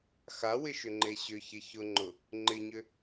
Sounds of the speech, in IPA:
x a w ɪ ʃ ʏ ŋ͡ǃ e ɕ ʏ ç ɪ ç ʊ ŋ͡ǃ ʊ | ŋ͡ǃ ɪ ɲ ʏ

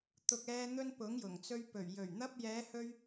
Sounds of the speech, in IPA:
t̪ ʊ˨ k̚ ɛː˧ n̪ ɵ˧ n p ʊ˨˥ ŋ j ʊ˨˩ ŋ t͡s ɵ˧ ɥ p ɵ˨˩ ɥ j ɵ˨˩ ɥ n̪ ɐ˧ p̚ j ɛː˨˧ h ɵ˧ ɥ

